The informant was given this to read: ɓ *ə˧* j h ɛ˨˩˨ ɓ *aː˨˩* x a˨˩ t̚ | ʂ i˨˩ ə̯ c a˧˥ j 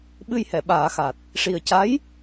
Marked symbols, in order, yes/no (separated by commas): no, no